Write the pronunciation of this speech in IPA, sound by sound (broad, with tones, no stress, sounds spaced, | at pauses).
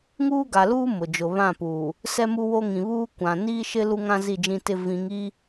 ŋ uː˦ ɡ a˨ l uː˦ m ʊ˨ d͡ʒ ʊ˨ β ã˦˨ p uː˨ | s ɛ˦ m u˦ w o˦ ŋ ĩ˨ β uː˦ kʷ ã˨ n iː˦ ʃ ɪ˦ l u˦ ŋ ã˦ z i˦˨ d͡ʒ ĩ˦ t ɪ˦ v ĩ˨˦ ŋ i˦